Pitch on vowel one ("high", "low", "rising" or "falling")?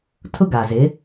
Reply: high